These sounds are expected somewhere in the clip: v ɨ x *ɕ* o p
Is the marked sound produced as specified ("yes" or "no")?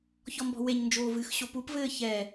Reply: yes